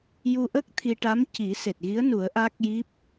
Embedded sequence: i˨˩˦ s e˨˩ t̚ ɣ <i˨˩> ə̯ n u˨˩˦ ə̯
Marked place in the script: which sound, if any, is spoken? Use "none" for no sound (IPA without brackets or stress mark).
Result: i˧˥